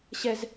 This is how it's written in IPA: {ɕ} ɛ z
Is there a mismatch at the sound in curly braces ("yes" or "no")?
no